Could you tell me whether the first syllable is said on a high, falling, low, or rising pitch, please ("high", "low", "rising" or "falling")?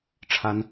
high